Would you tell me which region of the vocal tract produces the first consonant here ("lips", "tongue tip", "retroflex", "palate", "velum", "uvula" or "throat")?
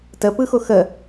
tongue tip